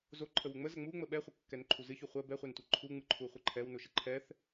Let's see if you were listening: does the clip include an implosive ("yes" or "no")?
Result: yes